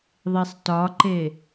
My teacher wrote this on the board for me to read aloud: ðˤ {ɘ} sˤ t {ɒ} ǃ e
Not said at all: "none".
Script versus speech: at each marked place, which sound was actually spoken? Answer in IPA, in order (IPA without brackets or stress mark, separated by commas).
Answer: e, ɒ